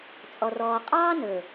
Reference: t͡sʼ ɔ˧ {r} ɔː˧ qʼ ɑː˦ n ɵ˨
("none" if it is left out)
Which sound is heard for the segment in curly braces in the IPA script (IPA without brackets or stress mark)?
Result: r